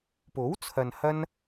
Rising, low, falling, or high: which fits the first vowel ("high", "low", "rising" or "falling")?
rising